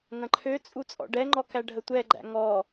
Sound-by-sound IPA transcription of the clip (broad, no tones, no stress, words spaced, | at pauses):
ŋɐ̃ǃʰø t͡sʼut͡sʼɔ̰ɖɛŋ͡ǃɔ kæɖʱətʷɛɡ͡ǃæ̰ ŋɔ